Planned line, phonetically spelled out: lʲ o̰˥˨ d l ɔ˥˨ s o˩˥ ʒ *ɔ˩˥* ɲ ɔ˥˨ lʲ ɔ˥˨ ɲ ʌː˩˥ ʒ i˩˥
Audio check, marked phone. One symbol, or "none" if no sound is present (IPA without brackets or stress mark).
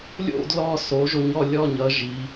o˩˥